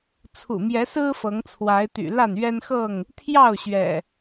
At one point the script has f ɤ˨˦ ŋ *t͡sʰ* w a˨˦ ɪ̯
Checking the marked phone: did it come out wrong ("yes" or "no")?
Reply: no